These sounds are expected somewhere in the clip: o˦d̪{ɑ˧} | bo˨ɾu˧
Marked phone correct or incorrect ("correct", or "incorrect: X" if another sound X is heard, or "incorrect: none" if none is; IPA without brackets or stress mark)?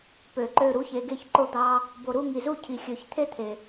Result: incorrect: ɑ˦